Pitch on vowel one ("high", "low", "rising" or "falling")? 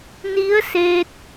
rising